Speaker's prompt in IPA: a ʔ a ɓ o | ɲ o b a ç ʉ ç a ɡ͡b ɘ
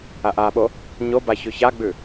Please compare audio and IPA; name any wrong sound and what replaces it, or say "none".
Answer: ɘ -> ʉ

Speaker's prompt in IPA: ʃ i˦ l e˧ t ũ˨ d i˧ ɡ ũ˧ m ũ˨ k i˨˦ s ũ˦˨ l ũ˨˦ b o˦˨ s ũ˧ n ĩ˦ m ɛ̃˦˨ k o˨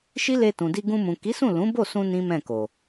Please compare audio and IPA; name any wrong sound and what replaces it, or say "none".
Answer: none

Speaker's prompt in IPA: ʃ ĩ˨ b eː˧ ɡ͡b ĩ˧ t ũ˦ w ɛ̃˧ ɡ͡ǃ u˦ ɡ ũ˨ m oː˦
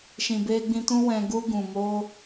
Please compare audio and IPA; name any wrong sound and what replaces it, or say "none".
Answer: ɡ͡ǃ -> ɡ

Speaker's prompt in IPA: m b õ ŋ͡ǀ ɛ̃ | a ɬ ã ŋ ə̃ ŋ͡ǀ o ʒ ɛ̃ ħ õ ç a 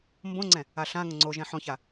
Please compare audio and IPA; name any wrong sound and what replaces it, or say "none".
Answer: none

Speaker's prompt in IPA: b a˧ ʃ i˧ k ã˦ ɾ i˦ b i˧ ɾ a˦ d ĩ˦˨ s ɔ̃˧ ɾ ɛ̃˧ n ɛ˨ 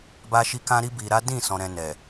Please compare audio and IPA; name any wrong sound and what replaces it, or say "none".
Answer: none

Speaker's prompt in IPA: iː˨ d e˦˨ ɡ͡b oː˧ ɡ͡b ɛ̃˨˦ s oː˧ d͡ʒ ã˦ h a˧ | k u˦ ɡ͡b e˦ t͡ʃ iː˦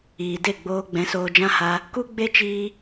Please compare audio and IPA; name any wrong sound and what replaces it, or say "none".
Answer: none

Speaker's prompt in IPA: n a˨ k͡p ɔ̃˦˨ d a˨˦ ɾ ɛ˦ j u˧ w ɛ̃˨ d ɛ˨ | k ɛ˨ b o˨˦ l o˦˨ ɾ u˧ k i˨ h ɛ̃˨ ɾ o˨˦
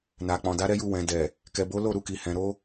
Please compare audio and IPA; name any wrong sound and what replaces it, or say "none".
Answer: ɔ̃˦˨ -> ɔ̃˨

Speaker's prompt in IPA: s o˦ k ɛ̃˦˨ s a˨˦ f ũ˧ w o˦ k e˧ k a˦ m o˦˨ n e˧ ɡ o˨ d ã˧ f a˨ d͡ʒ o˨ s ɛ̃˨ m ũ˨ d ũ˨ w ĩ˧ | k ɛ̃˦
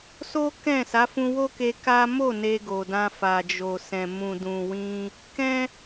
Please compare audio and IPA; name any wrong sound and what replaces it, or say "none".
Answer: none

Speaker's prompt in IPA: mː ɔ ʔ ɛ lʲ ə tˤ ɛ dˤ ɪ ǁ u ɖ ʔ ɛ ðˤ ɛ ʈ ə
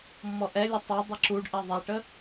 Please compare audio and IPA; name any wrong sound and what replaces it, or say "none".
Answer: none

